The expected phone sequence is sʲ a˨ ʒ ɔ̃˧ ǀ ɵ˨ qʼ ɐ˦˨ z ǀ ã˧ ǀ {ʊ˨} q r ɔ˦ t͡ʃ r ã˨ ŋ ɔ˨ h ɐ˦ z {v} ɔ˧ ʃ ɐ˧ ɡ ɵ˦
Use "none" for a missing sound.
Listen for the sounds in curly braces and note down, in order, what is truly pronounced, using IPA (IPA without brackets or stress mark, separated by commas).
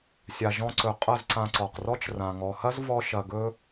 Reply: ɔ˨, v